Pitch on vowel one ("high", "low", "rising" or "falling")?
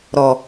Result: low